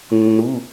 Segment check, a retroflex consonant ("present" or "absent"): absent